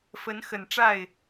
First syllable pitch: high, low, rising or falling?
rising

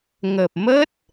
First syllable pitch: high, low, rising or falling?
low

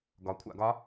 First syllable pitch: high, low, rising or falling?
rising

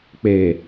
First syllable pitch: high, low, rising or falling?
low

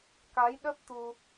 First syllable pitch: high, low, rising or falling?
rising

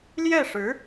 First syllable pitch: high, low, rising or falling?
falling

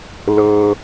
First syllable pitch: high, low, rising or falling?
low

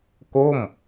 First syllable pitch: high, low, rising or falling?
falling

